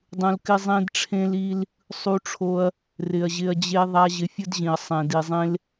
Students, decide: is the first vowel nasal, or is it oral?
nasal